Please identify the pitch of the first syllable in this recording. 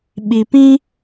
low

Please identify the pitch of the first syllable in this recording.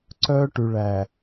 high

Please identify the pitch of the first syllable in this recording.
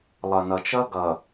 low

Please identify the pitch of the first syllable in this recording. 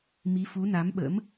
rising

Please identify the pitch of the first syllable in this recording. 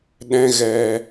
high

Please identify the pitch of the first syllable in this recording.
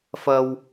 low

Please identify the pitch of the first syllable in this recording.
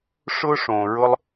high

